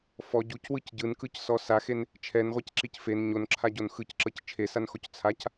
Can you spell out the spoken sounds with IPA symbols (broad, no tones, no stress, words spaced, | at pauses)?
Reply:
fɔ ɟucwɯc ɟɯnkɯcsɔ saxen | t͡ʃʰɛnʁʷɛcǁic fen ɲonǁʰaɟon xɯcǁɤc t͡ʃʰesanxoc t͡sʰac